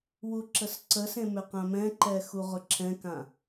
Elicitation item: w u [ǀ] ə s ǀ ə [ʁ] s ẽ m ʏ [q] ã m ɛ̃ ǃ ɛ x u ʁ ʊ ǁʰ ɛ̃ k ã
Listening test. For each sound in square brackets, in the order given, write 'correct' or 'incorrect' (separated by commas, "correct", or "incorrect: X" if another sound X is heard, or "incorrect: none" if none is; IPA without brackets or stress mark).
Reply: incorrect: ǁ, incorrect: none, correct